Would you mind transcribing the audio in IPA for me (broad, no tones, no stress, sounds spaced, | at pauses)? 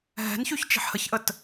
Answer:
ɦ ɛ̤ n ç y ç t͡ʃ i̤ ħ h ə ç ʔ ə t